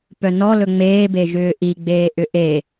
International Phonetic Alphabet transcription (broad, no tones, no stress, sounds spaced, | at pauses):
p œ n ɔ l ɵ ŋ͡m eː b e ʒ ʏː ʔ i ɡ͡b eː ʔ ʏ ʔ e